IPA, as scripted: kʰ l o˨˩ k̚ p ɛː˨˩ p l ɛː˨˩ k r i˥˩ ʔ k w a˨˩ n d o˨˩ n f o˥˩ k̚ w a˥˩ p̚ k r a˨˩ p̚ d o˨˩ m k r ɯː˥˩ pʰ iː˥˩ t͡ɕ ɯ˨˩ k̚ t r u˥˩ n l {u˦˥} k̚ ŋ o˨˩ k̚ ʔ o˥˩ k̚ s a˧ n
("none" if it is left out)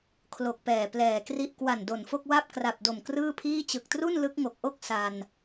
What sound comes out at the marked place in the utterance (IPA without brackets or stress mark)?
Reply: ɯ˦˥